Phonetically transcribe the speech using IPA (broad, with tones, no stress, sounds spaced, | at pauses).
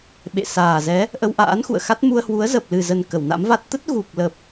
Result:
ɓ ḛ˧˨ s aː˨˩ z ɛ˨˦ | ʔ ə˧ w ʔ a̰ː˧˥ n x ṵ˧˨ ə̯ x a˦˥ t̚ m u˧ ə̯ h w u˨˦ ə̯ z ə˨˩ p̚ l ɨ˨˩ z ə˨˩ n k ə˧˩ w n a̰˧˥ m v a˦˥ t̚ t̪ ə˦˥ t̚ ɣ u˨˩ k̚ l ə˨˩ p̚